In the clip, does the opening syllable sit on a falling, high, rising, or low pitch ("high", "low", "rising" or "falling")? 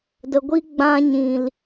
low